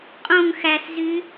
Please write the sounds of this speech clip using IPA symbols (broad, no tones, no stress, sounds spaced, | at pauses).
qʼ õ ŋ x æ s z y